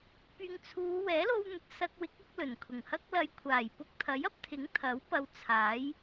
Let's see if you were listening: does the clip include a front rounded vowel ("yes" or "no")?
yes